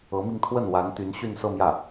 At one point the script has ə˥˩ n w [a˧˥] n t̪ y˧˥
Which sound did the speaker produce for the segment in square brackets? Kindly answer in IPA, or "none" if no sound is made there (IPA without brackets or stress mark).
a˧˥